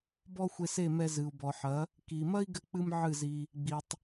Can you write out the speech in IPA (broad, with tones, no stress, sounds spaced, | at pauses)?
b ɔ˦ xʷ e˧ s e˦˨ m ɛ˧ z ɨ˨ u̯ b ɔ˨ ħ ɐ˨˦ | k i˨ m ɐ˦ i̯ ɡ ɘ˧ k͡p ɨ˧ m ʕ ɨ˦˨ z i˧ | ɡ͡b i˨ tˤ